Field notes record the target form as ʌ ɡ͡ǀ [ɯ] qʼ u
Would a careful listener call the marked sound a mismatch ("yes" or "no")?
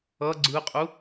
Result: no